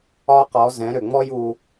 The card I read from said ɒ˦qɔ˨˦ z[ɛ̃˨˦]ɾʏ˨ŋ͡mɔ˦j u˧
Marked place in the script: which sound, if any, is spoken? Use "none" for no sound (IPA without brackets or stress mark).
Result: ɛ̃˨˦